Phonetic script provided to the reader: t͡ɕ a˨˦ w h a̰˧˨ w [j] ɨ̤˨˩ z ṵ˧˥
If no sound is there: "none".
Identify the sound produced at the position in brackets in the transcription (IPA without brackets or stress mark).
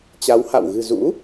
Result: ɣ